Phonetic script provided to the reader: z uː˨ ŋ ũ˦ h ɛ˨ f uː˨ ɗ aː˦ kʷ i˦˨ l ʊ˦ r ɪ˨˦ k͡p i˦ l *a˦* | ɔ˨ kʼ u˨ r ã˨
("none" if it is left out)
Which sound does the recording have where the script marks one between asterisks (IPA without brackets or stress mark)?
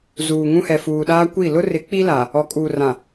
a˨